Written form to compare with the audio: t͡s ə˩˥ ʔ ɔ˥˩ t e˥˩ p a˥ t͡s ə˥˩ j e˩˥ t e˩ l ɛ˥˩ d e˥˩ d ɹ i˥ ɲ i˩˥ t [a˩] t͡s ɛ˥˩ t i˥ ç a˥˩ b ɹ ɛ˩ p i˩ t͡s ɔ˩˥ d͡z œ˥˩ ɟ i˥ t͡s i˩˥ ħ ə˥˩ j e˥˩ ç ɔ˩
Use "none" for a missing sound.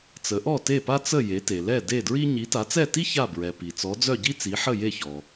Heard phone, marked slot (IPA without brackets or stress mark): a˩˥